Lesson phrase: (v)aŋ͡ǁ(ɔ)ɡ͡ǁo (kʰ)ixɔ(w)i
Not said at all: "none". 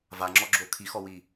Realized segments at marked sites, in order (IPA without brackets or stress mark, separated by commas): v, ɔ, kʰ, w